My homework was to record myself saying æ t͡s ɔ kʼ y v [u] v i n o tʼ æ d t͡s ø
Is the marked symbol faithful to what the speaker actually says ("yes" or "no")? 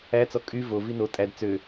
no